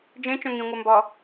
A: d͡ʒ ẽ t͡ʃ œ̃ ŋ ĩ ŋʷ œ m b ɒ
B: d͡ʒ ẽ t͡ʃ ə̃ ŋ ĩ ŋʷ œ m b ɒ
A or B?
A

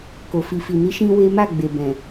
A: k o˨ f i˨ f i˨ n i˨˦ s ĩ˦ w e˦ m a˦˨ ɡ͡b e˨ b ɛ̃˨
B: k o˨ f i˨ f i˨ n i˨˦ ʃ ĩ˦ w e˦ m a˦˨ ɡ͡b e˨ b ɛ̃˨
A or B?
B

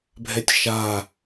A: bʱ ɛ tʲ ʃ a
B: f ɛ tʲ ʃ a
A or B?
A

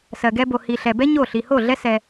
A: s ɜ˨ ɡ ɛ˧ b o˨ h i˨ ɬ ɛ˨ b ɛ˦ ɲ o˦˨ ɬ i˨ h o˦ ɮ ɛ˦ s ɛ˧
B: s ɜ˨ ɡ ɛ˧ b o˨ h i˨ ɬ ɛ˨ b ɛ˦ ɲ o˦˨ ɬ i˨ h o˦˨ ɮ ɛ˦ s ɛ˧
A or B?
B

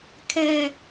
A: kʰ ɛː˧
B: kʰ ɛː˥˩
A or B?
A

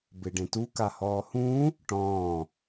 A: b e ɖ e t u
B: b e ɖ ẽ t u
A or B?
B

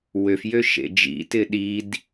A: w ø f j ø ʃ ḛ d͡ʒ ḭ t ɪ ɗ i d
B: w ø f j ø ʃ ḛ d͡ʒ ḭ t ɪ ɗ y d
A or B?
A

